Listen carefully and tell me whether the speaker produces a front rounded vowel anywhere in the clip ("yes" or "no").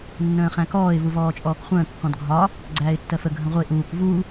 no